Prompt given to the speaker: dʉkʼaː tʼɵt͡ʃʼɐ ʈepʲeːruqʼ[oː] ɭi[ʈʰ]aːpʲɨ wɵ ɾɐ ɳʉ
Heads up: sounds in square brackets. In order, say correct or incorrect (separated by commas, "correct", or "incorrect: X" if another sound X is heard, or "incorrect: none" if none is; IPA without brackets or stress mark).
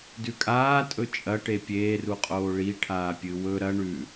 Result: correct, correct